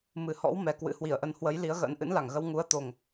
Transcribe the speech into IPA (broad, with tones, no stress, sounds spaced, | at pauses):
m ɨ˨˩ h ɔ̰˧˥ w m ɛ˨˩ k w ɨ̰˧˥ h w i˧˩ ə̯ ʔ ə˧ n h w ə˨˦ j l i˨˦ ə̯ ɣ ə̰ː˧˥ n ʔ ɨ̰˧˥ n l a˧˩ ŋ ɣ ə˧ w ŋ u˨˦ ə̯ t̪ o˨˩ ŋ